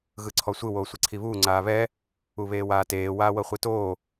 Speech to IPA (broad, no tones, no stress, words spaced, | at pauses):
ɣɯǀʰɔsʷɯ woːsʷiǀʰiβuː ŋ͡ǀaːβɛ | uβeːwaːteː waːwɤχʷitoː